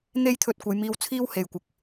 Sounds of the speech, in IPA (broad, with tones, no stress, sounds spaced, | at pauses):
n̪ e˥ j t̪ʰ ɵ˧ t̚ kʷ ɐ˨˧ j m iː˧ w t͡sʰ iː˥ w h e˨ j kʷ ɪ˨ k̚